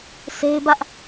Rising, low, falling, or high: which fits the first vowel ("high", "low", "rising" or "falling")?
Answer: high